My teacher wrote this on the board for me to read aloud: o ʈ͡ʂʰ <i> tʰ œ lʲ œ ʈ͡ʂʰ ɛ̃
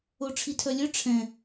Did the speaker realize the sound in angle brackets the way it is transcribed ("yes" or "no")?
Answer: yes